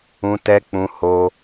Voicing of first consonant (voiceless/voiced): voiceless